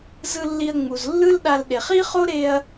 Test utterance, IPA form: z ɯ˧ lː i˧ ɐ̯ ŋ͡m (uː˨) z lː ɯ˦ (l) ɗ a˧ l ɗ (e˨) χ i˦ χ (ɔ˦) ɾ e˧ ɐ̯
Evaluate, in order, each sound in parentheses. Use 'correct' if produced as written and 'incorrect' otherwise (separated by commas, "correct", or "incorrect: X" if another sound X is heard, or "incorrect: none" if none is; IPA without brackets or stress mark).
incorrect: u˨, correct, correct, incorrect: o˦